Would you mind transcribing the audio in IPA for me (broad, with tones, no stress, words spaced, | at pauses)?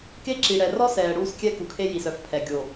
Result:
ke˦ǁi˨ ɽɛ˨rɔ˦sɛː˨ ɽuː˦skʲɛ˦ku˨kʰe˦ ji˨sœ˨fpʰɛ˨ ɡʲo˨